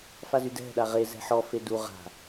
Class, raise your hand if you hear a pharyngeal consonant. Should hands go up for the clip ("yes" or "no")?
yes